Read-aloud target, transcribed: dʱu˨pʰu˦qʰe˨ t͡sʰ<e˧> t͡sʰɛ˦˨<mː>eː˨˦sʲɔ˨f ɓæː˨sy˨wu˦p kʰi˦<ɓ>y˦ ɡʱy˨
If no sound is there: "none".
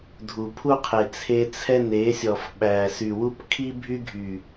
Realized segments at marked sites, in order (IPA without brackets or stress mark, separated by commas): e˧, n, bʱ